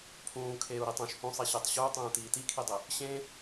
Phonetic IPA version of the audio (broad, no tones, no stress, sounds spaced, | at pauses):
pʰ ũː kʰ eː u̯ ɾ i tˤ ũ ʃ h ũ sˤ i ɕ e tˤ ɕ u y̯ tˤ ũː t iː t i kʰ i dˤ e | ɕ ẽː